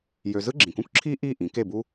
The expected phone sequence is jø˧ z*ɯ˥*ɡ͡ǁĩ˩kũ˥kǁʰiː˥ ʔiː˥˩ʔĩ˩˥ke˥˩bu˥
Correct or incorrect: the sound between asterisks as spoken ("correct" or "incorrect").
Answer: correct